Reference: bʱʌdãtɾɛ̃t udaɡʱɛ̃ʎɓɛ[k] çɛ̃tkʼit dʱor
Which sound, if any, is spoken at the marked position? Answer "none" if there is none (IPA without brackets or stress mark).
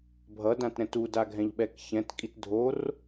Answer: k